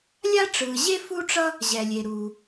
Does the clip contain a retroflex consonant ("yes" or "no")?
yes